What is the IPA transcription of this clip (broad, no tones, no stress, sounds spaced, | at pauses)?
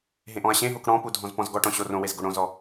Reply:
ɦ ẽ ʔ ɔ̃ ɐ̯ ɕ ẽ ɦ o k ɽ ɔ̃ p u dʱ ɔ̃ z p ɔ̃ z ɡ ɔ ʈ ɔ̃ ɕ o r õ w e z ɡ o ɽ õ z ɔ